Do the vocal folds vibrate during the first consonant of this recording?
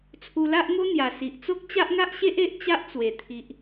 no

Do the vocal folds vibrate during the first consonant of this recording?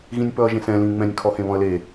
yes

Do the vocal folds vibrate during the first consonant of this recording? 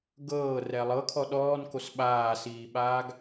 yes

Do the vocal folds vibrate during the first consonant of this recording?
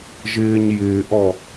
yes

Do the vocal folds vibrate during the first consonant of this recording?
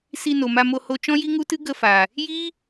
no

